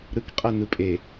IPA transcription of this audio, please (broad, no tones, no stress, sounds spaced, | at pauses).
ɾ ɯ k qʼ ɛ n ɯ pʼ e